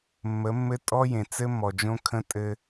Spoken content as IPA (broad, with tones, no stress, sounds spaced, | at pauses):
mː ə˨˦ mː ɘ˦ tʼ ɔ˦ j ẽ˨ t͡s ɘ˦ mː ɔ˨ d͡ʒ õ˦ kʰ ə̃˦ tʼ ɘ˦